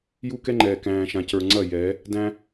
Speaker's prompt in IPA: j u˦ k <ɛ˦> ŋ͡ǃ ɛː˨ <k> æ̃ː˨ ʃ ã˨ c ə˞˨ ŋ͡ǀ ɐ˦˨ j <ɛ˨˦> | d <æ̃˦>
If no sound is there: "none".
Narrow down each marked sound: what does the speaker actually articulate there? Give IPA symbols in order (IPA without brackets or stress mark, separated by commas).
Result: ɛ˦, k, ɛ˨˦, æ̃˦